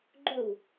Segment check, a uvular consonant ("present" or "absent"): absent